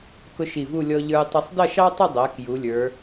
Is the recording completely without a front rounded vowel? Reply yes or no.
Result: yes